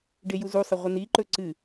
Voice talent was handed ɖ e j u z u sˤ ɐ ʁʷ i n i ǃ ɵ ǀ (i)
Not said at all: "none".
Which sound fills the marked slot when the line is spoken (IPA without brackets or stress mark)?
ɨ